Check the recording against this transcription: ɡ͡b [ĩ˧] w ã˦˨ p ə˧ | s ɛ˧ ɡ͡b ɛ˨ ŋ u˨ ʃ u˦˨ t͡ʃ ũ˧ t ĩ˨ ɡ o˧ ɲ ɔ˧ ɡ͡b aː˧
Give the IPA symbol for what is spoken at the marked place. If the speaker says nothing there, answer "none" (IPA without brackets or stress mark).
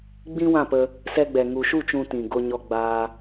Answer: ĩ˦